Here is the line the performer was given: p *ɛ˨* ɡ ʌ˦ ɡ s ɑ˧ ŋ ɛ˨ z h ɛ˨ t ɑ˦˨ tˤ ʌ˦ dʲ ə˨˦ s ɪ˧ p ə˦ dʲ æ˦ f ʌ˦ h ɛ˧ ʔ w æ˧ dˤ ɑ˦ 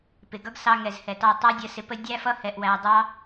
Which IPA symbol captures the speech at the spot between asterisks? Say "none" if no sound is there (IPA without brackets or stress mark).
ɪ˨